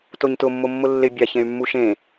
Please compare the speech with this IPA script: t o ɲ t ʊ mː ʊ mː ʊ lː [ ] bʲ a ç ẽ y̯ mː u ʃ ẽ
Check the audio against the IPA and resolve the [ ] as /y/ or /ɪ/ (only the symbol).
ɪ